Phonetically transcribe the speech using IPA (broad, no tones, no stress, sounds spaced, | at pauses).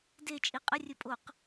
d e t͡ʃʼ i qʼ ə rʲ ɵ pʼ o q